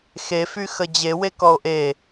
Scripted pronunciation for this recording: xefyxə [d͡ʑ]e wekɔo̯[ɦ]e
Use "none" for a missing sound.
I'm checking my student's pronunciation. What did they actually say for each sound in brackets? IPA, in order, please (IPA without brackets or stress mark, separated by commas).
d͡ʑ, ʔ